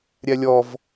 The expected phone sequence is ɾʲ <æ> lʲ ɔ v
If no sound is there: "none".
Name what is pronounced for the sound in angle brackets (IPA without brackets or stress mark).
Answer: æ